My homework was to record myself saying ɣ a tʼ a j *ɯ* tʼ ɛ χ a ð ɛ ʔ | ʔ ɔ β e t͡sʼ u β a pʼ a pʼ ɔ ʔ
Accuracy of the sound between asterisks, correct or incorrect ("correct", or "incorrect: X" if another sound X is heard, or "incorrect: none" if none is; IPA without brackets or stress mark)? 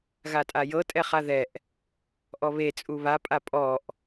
incorrect: ɤ